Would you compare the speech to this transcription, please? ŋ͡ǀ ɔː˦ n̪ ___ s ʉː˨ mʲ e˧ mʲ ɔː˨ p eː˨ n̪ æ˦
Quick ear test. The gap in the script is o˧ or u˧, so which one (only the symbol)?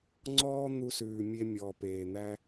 u˧